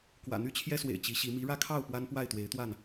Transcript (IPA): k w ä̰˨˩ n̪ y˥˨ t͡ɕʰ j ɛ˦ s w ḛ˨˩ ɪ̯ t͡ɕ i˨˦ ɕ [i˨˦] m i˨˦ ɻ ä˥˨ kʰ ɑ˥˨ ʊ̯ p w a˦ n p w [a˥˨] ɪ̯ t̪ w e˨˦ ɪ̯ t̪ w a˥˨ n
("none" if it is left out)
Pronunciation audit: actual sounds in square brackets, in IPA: i˨˦, a˥˨

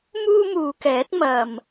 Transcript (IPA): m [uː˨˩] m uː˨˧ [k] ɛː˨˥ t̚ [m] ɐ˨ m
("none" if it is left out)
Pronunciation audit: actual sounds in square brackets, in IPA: uː˥, k, m

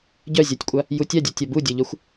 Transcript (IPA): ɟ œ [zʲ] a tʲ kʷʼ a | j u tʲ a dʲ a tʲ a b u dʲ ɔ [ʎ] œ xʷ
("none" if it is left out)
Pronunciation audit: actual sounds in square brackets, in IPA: zʲ, ʎ

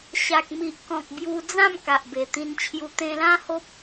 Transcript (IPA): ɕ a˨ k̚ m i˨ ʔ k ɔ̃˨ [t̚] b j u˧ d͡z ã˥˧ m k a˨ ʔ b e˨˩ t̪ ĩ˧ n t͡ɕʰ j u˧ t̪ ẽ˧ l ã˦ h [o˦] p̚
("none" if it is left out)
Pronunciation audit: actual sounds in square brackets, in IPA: k̚, o˦

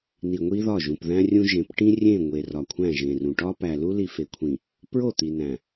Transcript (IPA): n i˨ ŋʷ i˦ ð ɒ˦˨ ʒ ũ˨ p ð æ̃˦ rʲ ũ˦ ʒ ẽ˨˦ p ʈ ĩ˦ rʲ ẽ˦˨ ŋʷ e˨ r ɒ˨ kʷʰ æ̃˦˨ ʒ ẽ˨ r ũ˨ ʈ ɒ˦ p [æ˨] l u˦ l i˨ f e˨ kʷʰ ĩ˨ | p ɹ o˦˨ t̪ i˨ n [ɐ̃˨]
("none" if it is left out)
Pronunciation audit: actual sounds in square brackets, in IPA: æ˨, æ̃˨

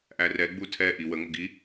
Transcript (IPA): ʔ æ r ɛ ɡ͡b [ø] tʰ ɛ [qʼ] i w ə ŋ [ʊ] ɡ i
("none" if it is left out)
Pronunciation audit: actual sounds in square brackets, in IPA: u, ʔ, ʊ

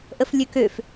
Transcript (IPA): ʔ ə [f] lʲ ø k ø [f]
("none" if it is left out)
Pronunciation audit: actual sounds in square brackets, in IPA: f, f

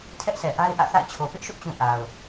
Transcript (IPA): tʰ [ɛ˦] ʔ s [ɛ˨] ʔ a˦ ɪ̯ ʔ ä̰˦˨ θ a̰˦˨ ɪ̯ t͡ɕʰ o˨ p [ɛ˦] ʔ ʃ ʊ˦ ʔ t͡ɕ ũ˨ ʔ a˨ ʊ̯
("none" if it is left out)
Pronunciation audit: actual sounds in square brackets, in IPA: ɛ˦, ɛ˨, ɪ˦

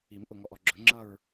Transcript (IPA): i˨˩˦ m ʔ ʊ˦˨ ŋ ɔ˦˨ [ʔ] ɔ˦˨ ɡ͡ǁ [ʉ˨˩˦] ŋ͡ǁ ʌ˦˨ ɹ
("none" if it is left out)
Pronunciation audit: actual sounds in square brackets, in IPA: ʔ, ʊ˨˩˦

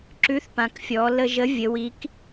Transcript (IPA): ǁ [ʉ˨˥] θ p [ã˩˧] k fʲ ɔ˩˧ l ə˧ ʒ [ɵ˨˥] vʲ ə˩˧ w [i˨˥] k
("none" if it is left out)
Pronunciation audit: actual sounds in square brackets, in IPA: ʉ˨˥, ã˩˧, ə˨˥, i˨˥

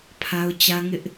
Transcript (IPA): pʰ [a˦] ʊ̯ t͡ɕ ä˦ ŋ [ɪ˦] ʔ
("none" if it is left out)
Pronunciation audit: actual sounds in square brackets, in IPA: a˦, ɪ˦

